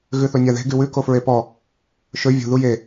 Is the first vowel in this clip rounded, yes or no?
yes